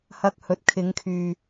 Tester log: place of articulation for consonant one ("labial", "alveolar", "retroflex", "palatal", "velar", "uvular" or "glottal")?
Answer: glottal